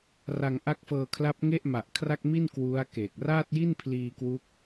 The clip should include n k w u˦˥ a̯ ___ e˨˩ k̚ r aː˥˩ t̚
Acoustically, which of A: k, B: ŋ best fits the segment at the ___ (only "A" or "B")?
A